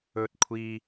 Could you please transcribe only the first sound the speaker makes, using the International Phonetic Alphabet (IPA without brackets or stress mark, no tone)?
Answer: ɵ